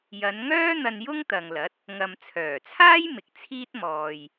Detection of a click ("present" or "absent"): absent